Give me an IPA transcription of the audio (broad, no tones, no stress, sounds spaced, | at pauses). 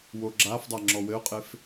w o ɡ͡ǁ a f dˤ a ŋ͡ǁ ɔ w ɘ ʊ̯ qʼ e f